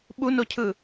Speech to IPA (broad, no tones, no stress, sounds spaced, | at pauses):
ɓ u n o cʰ ɯ